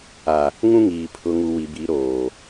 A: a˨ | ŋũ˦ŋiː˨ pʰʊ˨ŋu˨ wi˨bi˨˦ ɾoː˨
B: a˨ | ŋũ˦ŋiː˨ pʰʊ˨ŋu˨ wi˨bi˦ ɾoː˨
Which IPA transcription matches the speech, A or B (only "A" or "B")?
A